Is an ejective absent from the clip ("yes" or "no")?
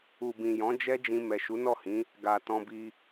yes